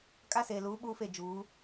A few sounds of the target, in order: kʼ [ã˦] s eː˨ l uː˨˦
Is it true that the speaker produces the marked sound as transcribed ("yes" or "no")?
no